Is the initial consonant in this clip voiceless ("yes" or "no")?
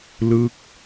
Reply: no